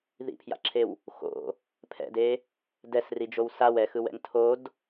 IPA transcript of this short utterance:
ð ḭ pʰ j a̰ ǁʰ e w | x o̰ | pʰ ɛ̰ d e | d ɛ s r i d͡ʒ o w s a w ɛ x ɯ w ɛ̰ ŋ tʰ o d

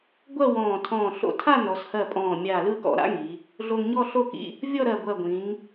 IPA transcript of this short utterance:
ɡʷ ɜ˥˧ w ɔ̃ː˧˩ tʰ ɔ̃ː˧˩ ɬ o̰˧˩ tʰ a˥˧ n ɔ˩˧ s h ɜ˧˩ pʼ ɔ̃ː˧˩ mʲ a˧˩ l ɯː˥˧ k ɔ̰˩˧ ɾ a̰˥ ŋ i˩˧ | ɮ o˧ ŋ ɲ ɔ˥˧ ɬ o˥˧ k ḭ˥˧ | vʲ ɔ˥˧ ɾ ɜ˧˩ ɡʷ ɜ˧˩ ɡʷ ĩ˩˧ ŋ

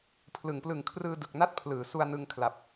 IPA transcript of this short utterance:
pʰ l ɯ˩˦ ŋ p l ɯ˨˩ ŋ kʰ r ɯː˧ d ɯ˨˩ k̚ n a˥˩ t̚ pʰ l ɯː˩˦ s u˧ a̯ n ɯ˧ ŋ kʰ l a˨˩ p̚

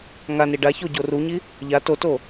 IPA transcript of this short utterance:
ŋ a n i ɖ a ç o ɟ o r u ɲ i | ʎ a t o t o

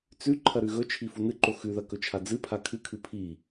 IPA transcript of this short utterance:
t͡s ʉ ǃʰ ɐ ɾ ʉ ɣ ɵ t͡ʃʰ i f u n ɨ ǃ o x ʉ ð ɐ k ɵ t͡ʃʰ a d͡z ɨ pʰ a kʰ ɨ kʰ ɨ pʰ i

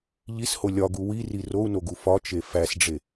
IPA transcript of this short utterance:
ʎ i s h o lʲ ɒ ɡ u w i r i r o u̯ n o ɡ u f ɒ t͡ʃ e f æ s ɖ͡ʐ e

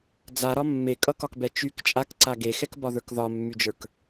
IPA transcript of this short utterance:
d͡z a ɾ ɒ mː e kʼ ʌ k ɒ k b ɛ t͡ʃ y k t͡ʃʼ a k ǀ a ɡ e x ɛ k b ɒ ð ə˞ k ð ɒ mː y d͡ʒ ə˞ k

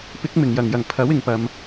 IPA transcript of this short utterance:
p ɪ˨˥ k̚ m ɪ˨˩ ŋ j ɐ˨˩ ŋ j ɐ˨˩ ŋ pʰ ɐ˨˥ w ɪ˨ ŋ p ɐ˨ m

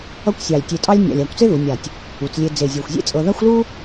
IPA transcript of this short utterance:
ʌ˥ kʷ sʲ ɑ˧˩ lʲ tʲ e˧ tʼ ɑ˥ lʲ nʲ a̰˧˩ lʲ a˧˩ kʷ t͡s e˥ ð u˩˧ nʲ a˧˩ tʲ | u˩˧ t͡s lʲ e˧ d͡z e˧˩ zʲ ɤ˧˩ xʷ zʲ ḛ˥ t͡sʼ ɤ˧ ð a˥ xʷ l u˥

